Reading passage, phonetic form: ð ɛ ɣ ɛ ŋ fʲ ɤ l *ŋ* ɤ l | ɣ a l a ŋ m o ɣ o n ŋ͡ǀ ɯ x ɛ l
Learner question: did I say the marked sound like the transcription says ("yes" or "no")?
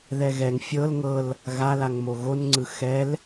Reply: yes